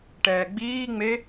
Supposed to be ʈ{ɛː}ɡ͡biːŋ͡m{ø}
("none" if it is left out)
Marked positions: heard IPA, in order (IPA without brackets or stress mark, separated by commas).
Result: ɛː, e